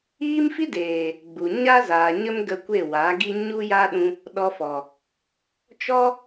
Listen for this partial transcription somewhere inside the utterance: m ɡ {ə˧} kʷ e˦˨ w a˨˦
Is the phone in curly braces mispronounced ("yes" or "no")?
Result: no